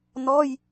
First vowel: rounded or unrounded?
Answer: rounded